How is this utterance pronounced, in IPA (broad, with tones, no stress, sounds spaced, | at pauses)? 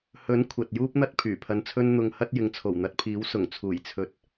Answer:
h ɵ˨˥ n kʷʰ ɐ˨ t̚ j uː˥ p̚ n̪ ɐ˥ t̚ pʰ yː˨˩ pʰ ɐ˧ n t͡sʰ ɵ˥ n n̪ ʊ˧ ŋ h ɐ˥ t̚ j ɪ˧ ŋ t͡sʰ o˨˩ w n̪ ɐ˨˥ t̚ pʰ iː˨˥ w s ʊ˨˩ ŋ t͡sʰ uː˨˩ j t͡sʰ ɵ˨ t̚